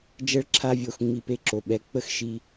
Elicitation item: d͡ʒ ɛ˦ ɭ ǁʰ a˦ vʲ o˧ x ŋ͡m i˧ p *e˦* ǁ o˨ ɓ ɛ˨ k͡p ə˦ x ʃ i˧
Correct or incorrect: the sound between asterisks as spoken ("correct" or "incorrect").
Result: incorrect